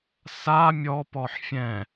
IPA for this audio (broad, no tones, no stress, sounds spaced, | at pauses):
s a mʲ ɔ p ɔ ħ fʲ ɛ̃